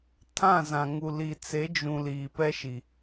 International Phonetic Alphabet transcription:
tʰ ã˦˨ z ã˨ ŋ u˨ l i˨ t͡s e˨˦ d͡ʒ ũ˨ l iː˨ p ɛ˦ ʃ i˨

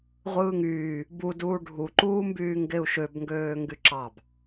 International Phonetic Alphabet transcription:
ʁʷ ɯː ŋ yː | b u d uː ɖʱ u ǃ uː m b yː ŋ ɡ e u̯ ʃ ø b ŋ ɡ øː ŋ ɡ y ǁ ɑ b

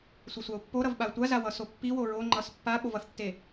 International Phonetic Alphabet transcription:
sʷ i sʷ a ʊ̯ pː o ɾ ʌ v ɓ a ə̯ tʷ a z a w ʌ s o pː i w o ɹ o ŋ͡ǃ ʌ s pː a ɓ o v ʌ θ tː e

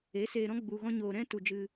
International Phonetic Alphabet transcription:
e˨˦ s eː˧ ɾ ɔ̃˦ ɡ͡b u˧ ɣ ɔ̃˦ ɲ oː˧ ɾ ɛ̃˦ t u˧ d͡ʒ ɨ˧

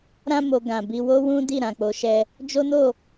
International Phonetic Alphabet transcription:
ɾ ã˧ m o˨ ɡ ã˨ b i˧ w o˦ w ũ˦ d i˦˨ ɾ ã˨ k͡p o˨˦ ʃ ɛ˧ | d͡ʒ o˦ n o˦˨

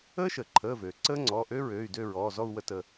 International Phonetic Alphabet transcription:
əː˦˥ ʃ əː˩ ǃʰ əː˩˧˩ v øː˩ ǀ əː˦˥ ŋ͡ǀ ɔː˩˧˩ ʔ ø˦˥ ɹ øː˩˧˩ y̯ d ø˦˨ ɹ ɔː˩˧˩ z ɔ˦˨ u̯ w ə˦˨ t ə˦˨

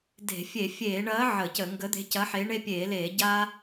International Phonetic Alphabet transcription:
d e̤˧˩˧ fʲ e˧˩˧ fʲ eː˧˩˧ ɳ ɐː˨˥ ʕ ə˧˩˧ c ə˧˩˧ ŋ ɡ ə˨˥ d̪ e̤˨˥ c ɐ˨˥ ħ eː˨˥ ɳ e˧ pʲ eː˧˩˧ l eː˧˩˧ ɟ aː˧

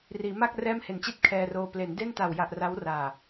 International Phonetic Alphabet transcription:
r iː˩˦ m a˥˩ k̚ r ɛː˥˩ m h e˨˩ n t͡ɕ i˥˩ t̚ kʰ ɛː˧ r oː˧ p l e˩˦ n d e˥˩ n t a˨˩ w j a˨˩ ʔ r a˦˥ w r aː˨˩

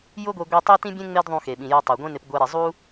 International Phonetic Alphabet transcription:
j ʊ˥ ɡʷ e˧ ɡʷ ɛ˥ tˤ e˥ t ĩ˥ bʲ ẽ˥ ŋ͡m e˥ d ðˤ ũ˧ x e˩ ɓ ĩ˩ j o˧ tˤ u˩ ɡʷ ẽ˥ n ɪ˧ p ɡʷ ɛ˧ ɾ i˩ zˤ u˥

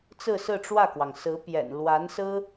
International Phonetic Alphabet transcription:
t͡s ɹ̩˥˧ s ɹ̩˥˧ ʈ͡ʂ w ä˥˩ k w ɑ˩ ŋ s ɹ̩˧˥ p j ɛ̰˨˩ n l w a˧˥ n s ɹ̩˥

